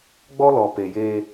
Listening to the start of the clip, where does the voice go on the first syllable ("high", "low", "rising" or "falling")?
high